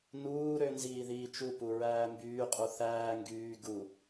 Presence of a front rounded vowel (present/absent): present